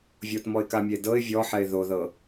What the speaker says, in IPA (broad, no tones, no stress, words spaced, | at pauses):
vʲotmɔɪ̯kamʲe dɤɪ̯ vʲɔħɛɪ̯ ðoðɤ